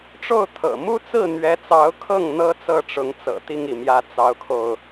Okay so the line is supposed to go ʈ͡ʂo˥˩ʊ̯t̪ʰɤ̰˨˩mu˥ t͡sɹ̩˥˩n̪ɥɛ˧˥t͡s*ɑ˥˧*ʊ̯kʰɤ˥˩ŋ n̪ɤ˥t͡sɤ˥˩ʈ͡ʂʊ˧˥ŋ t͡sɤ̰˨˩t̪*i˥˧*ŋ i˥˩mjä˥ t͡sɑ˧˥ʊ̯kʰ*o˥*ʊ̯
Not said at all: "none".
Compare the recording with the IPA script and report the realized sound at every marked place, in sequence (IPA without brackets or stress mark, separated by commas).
ɑ˧˥, i˥˧, o˧